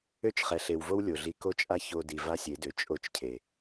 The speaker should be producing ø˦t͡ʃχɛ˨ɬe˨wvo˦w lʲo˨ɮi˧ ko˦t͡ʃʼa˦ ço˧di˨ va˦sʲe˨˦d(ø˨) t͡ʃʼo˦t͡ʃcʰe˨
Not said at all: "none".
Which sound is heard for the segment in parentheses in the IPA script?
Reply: ø˨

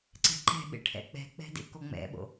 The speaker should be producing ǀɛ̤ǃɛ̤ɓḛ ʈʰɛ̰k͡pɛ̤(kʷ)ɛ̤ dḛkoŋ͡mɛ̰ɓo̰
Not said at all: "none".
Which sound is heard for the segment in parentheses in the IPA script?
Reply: k͡p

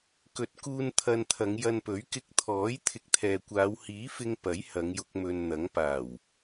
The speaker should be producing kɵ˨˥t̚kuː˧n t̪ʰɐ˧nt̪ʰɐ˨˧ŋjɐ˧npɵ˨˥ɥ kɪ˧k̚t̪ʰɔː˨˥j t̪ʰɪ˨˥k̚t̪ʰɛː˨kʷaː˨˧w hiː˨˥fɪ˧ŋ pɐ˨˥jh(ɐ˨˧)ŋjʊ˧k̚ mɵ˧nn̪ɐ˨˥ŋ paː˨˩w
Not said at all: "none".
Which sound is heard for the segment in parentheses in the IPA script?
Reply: ɐ˨˧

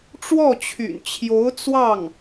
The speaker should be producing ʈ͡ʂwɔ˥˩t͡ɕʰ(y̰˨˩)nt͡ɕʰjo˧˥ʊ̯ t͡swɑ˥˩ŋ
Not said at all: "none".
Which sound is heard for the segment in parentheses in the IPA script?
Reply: y̰˨˩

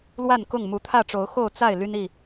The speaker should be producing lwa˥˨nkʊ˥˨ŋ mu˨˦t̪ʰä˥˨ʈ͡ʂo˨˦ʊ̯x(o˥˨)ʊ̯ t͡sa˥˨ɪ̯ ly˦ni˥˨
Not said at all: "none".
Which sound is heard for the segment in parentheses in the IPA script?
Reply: o˥˨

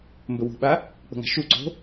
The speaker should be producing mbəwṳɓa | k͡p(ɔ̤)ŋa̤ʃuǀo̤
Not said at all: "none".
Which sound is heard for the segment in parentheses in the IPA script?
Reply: ə̤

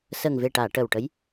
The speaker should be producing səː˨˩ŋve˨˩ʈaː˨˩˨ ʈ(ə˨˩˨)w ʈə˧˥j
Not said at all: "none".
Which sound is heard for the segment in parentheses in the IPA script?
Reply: ə˨˩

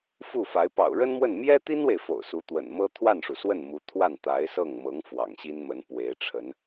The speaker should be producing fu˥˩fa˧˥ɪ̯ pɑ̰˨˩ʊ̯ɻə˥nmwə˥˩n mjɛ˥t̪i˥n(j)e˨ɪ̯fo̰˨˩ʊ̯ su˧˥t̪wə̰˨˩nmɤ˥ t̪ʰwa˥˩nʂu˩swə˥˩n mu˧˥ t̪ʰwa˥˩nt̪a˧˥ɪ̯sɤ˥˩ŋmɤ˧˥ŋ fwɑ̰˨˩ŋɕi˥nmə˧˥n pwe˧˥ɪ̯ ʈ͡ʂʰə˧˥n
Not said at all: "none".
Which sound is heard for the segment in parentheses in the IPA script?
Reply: w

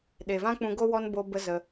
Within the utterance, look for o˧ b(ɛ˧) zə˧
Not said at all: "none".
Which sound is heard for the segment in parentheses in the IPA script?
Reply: ə˧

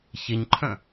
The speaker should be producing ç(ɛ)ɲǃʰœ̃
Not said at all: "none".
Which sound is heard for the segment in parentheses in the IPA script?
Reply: e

